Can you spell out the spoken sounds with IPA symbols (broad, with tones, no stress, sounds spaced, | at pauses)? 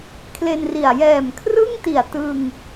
kʰ l e˧ n r i˨˩ a̯ j ɛː˨˩ m kʰ r ɯ˥˩ ŋ t i˨˩ a̯ t ɯ˧ ŋ